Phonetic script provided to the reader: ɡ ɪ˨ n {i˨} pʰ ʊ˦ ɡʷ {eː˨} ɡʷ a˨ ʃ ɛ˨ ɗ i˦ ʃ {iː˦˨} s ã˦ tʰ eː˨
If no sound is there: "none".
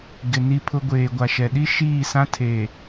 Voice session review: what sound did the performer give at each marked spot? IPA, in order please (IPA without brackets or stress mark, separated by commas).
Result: i˦, eː˨, iː˦˨